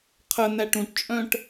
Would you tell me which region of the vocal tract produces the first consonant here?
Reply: uvula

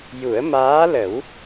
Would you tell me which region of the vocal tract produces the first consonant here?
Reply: palate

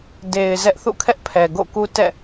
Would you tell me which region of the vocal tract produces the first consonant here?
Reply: tongue tip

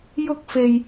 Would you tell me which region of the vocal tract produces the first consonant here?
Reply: palate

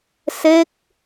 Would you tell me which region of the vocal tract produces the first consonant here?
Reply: tongue tip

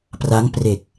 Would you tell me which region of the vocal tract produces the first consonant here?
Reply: lips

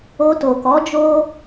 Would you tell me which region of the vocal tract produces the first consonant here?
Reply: tongue tip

